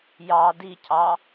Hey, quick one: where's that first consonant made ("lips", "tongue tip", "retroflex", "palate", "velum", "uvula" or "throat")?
palate